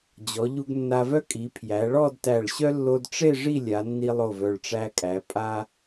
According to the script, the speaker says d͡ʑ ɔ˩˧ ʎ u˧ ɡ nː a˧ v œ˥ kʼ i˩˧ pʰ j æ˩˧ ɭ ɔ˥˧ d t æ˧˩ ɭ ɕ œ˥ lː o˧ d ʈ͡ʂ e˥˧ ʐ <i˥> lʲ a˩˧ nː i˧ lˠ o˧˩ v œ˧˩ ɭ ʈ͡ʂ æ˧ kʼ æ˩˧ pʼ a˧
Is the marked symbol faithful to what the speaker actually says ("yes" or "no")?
no